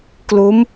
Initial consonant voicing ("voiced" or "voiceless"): voiceless